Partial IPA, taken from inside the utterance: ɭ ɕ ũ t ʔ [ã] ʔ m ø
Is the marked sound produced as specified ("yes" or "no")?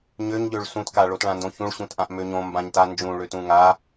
yes